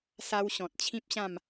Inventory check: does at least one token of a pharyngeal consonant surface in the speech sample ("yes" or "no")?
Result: no